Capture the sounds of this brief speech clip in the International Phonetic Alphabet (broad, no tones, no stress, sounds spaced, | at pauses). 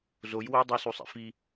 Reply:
z o j w o dˤ i s u sˤ ḭ f i